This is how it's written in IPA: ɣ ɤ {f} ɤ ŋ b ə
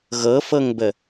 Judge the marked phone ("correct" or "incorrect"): correct